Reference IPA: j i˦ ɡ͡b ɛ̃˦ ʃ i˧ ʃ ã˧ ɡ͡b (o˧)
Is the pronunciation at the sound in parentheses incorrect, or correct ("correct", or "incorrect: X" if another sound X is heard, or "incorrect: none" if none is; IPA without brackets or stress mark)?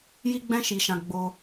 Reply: correct